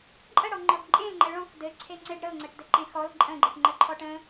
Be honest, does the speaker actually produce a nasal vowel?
yes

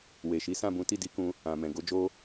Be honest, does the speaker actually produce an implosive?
no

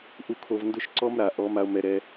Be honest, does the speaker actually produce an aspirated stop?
yes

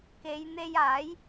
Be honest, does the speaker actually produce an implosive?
no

